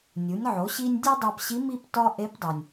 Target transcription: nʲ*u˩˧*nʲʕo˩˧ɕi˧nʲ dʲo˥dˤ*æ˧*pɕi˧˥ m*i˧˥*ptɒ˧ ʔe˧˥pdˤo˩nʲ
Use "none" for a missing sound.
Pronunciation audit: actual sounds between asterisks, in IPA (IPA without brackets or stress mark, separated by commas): u˩˧, æ˧, i˧